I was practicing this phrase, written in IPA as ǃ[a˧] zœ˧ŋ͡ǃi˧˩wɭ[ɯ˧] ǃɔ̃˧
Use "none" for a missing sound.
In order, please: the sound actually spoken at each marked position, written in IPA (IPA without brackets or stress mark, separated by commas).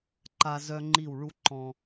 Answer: a˧, u˧